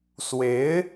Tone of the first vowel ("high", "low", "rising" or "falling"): rising